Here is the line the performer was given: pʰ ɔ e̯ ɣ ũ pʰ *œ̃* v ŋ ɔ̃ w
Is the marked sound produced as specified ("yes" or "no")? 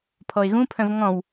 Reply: yes